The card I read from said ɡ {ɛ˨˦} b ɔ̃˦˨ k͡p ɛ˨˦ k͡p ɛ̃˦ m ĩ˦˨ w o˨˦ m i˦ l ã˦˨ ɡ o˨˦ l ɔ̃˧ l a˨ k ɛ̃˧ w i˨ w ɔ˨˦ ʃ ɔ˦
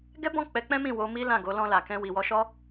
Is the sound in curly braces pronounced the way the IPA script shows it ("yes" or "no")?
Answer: no